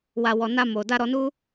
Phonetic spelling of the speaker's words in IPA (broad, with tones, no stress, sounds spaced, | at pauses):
w a˨ w ɔ˨ n a˧ m o˨ d a˧ ɾ ɔ˧ n u˦